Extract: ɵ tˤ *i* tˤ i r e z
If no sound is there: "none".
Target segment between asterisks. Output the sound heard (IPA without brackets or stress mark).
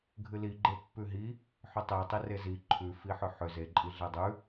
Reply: e